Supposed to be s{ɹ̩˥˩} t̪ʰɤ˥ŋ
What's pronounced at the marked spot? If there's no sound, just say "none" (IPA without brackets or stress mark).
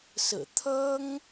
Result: ɹ̩˨˩